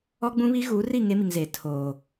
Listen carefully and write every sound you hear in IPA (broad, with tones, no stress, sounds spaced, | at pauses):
ɔ˦ ɡ͡b ũ˦ β i˦ ɣ uː˨˦ r i˦˨ ŋ e˦ m i˨ ŋ z eː˨ tʰ oː˨